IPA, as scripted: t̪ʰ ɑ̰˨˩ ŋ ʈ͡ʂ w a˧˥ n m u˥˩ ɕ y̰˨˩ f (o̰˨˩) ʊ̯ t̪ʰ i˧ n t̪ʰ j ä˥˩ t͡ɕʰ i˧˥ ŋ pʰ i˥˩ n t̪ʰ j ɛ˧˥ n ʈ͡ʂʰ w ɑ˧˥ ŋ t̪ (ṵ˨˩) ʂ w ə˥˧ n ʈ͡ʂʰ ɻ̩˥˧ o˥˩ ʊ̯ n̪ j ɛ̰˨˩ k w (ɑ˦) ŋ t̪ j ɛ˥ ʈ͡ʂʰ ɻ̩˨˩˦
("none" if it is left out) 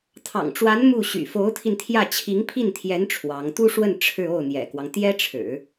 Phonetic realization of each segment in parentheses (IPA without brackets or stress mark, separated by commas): o˧˥, u˥, ɑ˦